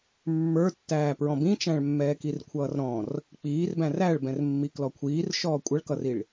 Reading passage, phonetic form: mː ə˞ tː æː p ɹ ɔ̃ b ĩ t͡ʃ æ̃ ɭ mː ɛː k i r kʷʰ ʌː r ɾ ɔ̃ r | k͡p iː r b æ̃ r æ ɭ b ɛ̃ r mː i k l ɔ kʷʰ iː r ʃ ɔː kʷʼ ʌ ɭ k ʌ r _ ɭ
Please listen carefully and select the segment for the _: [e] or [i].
i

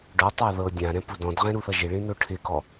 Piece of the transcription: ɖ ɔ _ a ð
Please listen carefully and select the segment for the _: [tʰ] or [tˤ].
tˤ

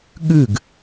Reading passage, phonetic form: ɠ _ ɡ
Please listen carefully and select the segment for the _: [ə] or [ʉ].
ʉ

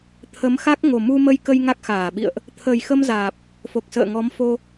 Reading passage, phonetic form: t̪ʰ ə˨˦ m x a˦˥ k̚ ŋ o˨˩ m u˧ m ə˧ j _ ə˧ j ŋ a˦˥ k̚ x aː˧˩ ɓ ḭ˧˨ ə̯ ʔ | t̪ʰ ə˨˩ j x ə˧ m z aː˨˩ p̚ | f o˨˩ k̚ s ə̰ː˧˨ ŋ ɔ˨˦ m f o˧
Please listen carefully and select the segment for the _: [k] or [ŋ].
k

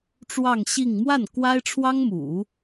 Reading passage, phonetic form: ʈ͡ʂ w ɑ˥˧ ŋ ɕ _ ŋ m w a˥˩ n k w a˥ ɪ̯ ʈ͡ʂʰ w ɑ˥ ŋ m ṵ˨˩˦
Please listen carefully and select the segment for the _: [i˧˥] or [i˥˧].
i˥˧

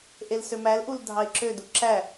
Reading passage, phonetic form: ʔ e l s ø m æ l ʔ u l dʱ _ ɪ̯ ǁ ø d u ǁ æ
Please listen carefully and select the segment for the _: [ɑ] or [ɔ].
ɑ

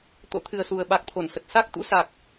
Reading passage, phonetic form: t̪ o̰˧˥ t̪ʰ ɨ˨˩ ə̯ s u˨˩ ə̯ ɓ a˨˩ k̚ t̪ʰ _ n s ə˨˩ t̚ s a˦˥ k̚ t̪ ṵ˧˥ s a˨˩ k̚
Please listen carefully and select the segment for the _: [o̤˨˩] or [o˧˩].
o˧˩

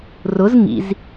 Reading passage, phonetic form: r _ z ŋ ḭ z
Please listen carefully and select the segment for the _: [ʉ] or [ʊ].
ʊ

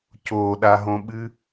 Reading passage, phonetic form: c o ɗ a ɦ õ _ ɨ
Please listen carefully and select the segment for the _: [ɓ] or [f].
ɓ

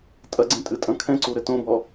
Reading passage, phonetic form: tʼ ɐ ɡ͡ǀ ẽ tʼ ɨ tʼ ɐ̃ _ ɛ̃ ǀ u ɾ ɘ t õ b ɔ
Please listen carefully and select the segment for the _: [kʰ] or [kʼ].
kʰ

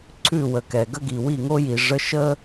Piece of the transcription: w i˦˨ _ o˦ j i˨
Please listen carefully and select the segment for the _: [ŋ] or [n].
ŋ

